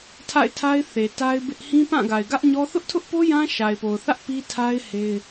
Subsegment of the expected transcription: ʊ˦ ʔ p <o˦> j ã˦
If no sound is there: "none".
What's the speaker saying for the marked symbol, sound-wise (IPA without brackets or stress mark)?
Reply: o˦